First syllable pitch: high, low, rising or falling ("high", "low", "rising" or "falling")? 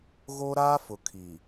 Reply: high